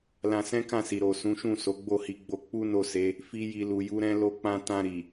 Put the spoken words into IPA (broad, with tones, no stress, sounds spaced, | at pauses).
l ã˧ s ɛ̃˦ k ã˦˨ s i˨ ɾ o˨ s ũ˨˦ ʃ ũ˦˨ s o˨˦ ɡ͡b o˦˨ h i˧ ɡ͡b o˧ k͡p u˦ n o˦˨ s e˨˦ | f i˧ j i˨ l u˨ j u˨˦ ɾ ɛ̃˦ l o˧ k͡p ã˧ t ã˧ ɾ i˨